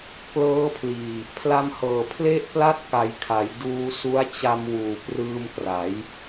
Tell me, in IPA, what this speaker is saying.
k l ɤː˦˥ pʰ l iː˨˩ | pʰ l a˧ m h ɤː˨˩ pʰ l e˥˩ ʔ p l a˥˩ t̚ k a˨˩ j kʰ a˩˦ j d uː˧ s u˦˥ a̯ t͡ɕ a˧ m w uː˨˩ p r ɯː˧ m k r a˩˦ j

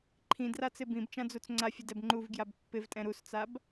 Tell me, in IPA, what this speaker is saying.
ǃʰ ĩ d r a t͡s ɪ b ĩ b t͡ʃ ã d͡z u t͡s ŋ͡ǀ a fʲ ʊ d ɛ b ŋ͡ǃ u v ɡ j a b pː ɪ v tʼ ɛ̃ ɾ u s t͡s a b

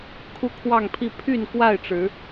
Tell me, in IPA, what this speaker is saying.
kʰ u˦ kʰ w ɑ˥˨ ŋ pʰ i˥˨ pʰ y˥˨ n k w a˥˨ ɪ̯ ʈ͡ʂ ɻ̩˨˦

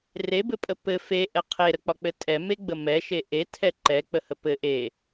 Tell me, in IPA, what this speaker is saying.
r e b ɘ pʼ ə p ɘ f e ʔ ɛ qʰ e ɾ ə k͡p ɒ k͡p ɘ tʼ ɛ m e ɡ͡b ə m ɛ ʃ e ʔ e tʰ ɛ ǃ ɛ k͡p ə h ə p ɘ ʔ e

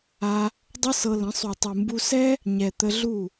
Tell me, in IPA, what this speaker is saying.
a˧ | dˤ ɯ˦ s ɤ˧ l ə̃˨˦ sˤ u˨ tˤ ɯ˨ m b u˧ s ɛ˦ | ɲ ɛ˨ t̪ ə˧ ɮ u˦˨

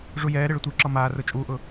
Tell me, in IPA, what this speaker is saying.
ʐ u j ɛː ɾ e ɭ ə tʷ e ǁ ɒ m aː r ʊ t͡ʃʼ uː ʔ ʊ

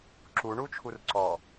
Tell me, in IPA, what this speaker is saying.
ǁ u ɳ u t͡ʃʰ u r ǀ ɔ

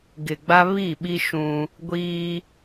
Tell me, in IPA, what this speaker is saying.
ɡ ɪ˨ ɡ͡b a˦ β i˦˨ ɓ i˦ ʃ ũ˦ | ɡʷ iː˦

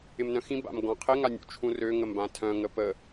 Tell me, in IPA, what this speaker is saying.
ɪ m n œ̃ x ĩ b a̰ m ɡ ɔ̃ qʰ ɪ ŋ a nʲ ṵ t͡ʃʰ ũ r ø ŋ ə m b ã tʰ œ̃ ŋ ə p ə

